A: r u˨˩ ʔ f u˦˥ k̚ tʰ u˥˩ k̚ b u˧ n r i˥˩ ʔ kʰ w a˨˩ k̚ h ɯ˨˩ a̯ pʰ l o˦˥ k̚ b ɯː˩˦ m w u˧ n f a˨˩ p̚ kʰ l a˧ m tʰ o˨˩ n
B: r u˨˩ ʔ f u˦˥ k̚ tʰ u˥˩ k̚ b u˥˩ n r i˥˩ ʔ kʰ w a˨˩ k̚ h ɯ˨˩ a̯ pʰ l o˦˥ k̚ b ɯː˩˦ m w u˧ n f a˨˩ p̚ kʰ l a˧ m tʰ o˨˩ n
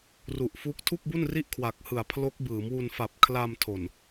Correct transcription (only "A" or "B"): B